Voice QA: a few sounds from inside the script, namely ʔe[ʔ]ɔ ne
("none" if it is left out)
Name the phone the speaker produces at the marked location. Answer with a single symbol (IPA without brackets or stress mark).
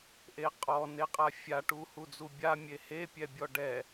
qʼ